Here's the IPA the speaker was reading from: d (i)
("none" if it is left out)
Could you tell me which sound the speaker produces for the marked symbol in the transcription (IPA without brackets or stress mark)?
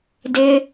ɪ